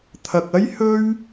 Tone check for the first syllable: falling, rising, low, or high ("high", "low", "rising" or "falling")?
low